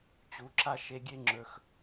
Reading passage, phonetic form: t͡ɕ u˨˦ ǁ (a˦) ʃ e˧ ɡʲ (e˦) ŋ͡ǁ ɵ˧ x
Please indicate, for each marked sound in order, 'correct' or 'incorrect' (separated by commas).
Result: correct, correct